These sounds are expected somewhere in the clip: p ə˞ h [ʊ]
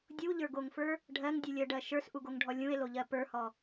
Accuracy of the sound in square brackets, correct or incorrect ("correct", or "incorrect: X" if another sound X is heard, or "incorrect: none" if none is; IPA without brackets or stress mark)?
incorrect: ɔ